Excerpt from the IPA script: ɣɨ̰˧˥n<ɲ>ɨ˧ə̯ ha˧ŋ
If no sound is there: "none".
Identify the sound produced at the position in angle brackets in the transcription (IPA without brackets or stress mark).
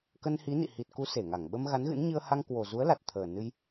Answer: ɲ